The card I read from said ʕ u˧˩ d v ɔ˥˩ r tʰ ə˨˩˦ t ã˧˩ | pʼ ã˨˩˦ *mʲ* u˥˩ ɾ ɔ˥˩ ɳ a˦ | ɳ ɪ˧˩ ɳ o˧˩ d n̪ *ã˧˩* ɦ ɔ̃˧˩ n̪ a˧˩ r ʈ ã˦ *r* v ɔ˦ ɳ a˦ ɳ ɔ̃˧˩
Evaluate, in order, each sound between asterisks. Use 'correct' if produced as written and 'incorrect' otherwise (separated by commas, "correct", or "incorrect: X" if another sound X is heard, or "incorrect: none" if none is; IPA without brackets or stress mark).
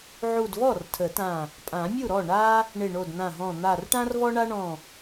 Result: correct, correct, correct